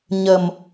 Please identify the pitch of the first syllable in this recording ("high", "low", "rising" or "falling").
low